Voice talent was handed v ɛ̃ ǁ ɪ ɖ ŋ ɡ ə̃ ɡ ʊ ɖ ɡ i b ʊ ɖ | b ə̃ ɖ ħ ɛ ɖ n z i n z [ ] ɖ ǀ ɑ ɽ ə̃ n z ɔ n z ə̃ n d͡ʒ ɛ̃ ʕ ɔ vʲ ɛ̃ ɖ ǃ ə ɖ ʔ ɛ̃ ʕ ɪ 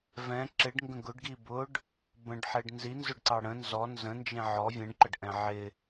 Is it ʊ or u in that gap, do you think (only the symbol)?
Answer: ʊ